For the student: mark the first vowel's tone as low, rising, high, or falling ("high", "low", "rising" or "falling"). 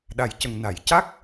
low